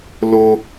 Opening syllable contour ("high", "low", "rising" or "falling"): high